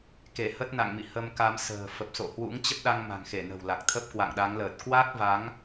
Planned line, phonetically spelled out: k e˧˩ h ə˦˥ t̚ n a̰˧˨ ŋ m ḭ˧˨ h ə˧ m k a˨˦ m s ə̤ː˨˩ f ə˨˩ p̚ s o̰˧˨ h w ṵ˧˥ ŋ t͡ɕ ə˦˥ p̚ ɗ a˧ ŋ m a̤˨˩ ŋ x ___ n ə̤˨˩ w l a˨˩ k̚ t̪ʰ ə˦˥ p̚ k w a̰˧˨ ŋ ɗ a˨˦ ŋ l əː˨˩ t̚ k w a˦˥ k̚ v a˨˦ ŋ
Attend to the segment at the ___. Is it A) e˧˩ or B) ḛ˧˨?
A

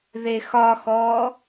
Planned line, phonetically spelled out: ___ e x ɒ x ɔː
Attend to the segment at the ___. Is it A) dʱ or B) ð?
B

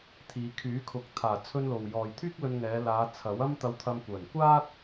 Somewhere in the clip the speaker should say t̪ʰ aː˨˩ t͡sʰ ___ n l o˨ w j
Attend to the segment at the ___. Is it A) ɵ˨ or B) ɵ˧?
B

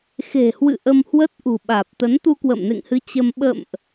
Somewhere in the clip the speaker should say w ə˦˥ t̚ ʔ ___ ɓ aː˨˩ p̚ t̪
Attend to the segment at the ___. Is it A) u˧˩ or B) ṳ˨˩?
B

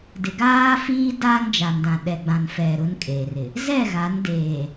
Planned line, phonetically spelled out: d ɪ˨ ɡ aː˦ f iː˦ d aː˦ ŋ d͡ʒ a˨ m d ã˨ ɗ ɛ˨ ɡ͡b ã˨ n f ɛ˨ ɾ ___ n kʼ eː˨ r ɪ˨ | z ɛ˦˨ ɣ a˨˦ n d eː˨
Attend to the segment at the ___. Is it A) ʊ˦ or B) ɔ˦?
A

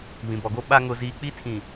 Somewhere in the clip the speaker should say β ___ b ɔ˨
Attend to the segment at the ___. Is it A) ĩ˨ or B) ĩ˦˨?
A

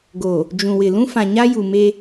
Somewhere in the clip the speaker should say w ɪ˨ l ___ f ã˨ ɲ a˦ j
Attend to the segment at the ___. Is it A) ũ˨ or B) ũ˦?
B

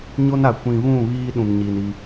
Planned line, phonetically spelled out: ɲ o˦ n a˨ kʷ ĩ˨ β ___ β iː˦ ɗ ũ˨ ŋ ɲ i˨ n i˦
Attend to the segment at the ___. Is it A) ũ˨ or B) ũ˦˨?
B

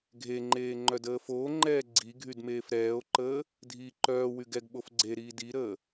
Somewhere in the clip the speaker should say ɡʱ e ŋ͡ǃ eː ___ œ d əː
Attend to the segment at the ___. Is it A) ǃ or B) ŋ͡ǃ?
B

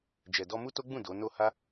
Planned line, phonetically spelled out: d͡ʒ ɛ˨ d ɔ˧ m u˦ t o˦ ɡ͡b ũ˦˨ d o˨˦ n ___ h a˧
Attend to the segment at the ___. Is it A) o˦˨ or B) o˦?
A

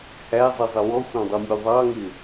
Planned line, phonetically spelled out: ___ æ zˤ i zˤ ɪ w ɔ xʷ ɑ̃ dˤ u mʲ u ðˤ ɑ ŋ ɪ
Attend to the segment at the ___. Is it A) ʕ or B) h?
B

